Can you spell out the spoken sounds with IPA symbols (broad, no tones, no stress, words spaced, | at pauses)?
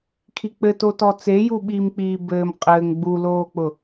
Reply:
kʰik͡pɘtotɔ t͡seju ɓiːmk͡piːbɘːm qʼɘːŋ ɡ͡buloːk͡pʊ